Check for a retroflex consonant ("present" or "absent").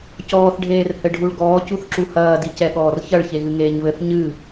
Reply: present